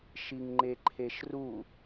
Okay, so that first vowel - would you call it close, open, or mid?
close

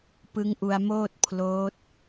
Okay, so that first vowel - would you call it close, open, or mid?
close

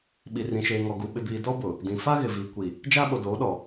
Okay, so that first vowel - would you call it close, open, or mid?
close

